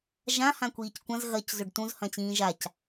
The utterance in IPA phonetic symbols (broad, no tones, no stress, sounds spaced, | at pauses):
ʒ ã h ã kʷ iː c kʷ ɐ̃ z ɣ ɐ c z ɵ ɖ t ũ z h ɐ̃ t͡ɕ ĩː ʒ a c